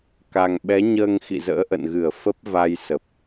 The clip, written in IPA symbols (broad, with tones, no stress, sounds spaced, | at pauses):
k a˨˩ ŋ ɓ ɛ˨˦ ɲ əː˧ ŋ x ḭ˧˨ z ə̰ː˧˥ ʔ ə̰˧˨ n ɣ ɨ˧˩ ə̯ f ə˦˥ p̚ v a˧ j s ə˨˩ p̚